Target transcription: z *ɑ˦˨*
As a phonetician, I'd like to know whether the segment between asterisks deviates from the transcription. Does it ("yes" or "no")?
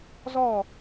yes